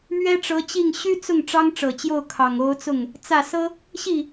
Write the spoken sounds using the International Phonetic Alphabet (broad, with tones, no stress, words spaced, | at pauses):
mɥɛ˥ʈ͡ʂɤ˧˥t͡ɕi˥˩ŋ ɕy˥t͡sʊ˥˩ŋ ʈ͡ʂɑ˥ŋʈ͡ʂɤ˨˩t͡ɕjo˥˩ʊ̯ kʰɑ˨˩ŋo˧˥ʊ̯t͡sʊ˥˩ŋ | t͡sä˥˩sɤ˥ | ɕi˥˩